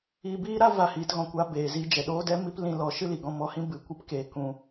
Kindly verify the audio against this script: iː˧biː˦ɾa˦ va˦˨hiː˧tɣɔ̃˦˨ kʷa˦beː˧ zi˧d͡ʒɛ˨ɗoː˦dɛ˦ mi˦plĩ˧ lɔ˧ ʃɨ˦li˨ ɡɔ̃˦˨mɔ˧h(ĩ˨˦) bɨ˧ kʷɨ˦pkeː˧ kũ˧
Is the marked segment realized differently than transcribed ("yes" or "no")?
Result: yes